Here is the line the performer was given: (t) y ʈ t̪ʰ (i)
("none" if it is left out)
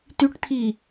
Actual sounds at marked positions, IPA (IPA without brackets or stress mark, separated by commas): t, i